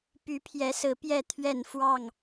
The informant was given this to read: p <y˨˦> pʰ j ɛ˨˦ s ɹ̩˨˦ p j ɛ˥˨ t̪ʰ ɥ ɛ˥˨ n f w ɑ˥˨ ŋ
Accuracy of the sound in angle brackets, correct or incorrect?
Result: correct